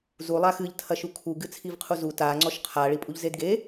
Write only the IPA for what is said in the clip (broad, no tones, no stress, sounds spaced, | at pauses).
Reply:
z u lˠ a x ɨ ʎ tʰ ɐ ʃ u kʰ u ɡ ɨ t͡sʰ i v qʰ u z u t a ŋ͡ǀ ɔ ʃ qʰ a ɭ i pʼ u ʎ z e d ɡ e